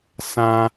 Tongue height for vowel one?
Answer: low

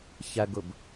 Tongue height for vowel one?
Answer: low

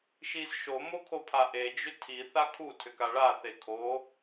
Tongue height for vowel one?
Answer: high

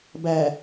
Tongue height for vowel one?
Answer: low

